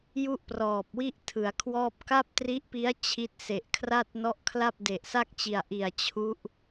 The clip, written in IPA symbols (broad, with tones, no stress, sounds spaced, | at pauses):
j u˥˩ ʔ p r ɔː˨˩ p̚ w i˥˩ ʔ tʰ ɯ˩˦ a̯ kʰ w ɔː˥˩ p̚ k a˥˩ p̚ t r i˦˥ ʔ p i˦˥ a̯ t͡ɕʰ i˦˥ t̚ s e˨˩ ʔ kʰ r a˥˩ t̚ n ɔ˦˥ ʔ kʰ l a˥˩ p̚ d e˨˩ ʔ s a˥˩ k̚ t͡ɕ i˨˩ a̯ ʔ i˨˩ a̯ t͡ɕʰ u˦˥ ʔ